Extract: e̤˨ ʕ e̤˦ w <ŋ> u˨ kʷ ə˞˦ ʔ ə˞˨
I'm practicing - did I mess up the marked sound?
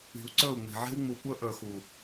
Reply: yes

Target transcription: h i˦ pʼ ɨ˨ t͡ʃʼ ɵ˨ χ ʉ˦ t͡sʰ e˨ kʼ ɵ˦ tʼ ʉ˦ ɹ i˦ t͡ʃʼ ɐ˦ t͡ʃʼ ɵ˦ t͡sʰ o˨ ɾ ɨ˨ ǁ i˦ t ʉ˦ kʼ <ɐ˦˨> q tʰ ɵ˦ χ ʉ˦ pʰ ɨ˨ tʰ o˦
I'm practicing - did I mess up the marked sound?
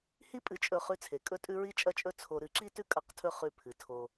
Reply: no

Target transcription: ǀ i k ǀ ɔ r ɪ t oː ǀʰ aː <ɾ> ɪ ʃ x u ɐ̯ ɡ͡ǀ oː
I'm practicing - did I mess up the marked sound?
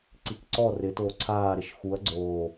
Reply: no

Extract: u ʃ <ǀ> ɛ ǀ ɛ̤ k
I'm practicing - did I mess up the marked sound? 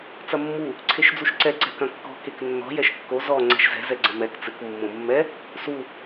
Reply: no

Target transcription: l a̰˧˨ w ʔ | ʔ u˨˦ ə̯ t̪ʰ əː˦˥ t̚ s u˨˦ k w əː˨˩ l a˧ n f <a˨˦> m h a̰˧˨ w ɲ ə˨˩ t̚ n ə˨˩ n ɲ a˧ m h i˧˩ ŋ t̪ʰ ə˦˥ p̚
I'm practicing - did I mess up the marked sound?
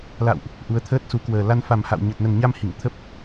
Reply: yes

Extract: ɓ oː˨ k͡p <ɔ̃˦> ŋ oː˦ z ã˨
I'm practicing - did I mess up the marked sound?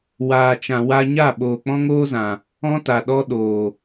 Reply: no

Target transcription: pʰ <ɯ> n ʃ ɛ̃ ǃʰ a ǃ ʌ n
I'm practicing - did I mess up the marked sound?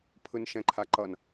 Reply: no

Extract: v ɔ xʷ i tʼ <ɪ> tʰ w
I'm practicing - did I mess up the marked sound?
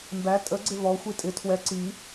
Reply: no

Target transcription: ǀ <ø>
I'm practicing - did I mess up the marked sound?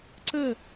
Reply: yes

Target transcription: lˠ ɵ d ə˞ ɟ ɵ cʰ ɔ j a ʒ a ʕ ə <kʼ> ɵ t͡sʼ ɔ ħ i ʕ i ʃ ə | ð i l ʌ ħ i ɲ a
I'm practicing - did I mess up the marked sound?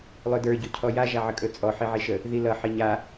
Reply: no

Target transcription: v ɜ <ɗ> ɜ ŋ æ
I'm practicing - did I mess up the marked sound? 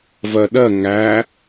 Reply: no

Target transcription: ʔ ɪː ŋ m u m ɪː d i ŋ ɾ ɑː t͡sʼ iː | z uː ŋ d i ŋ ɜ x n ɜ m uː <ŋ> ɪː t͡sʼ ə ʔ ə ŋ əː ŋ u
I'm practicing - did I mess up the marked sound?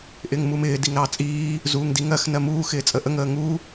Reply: yes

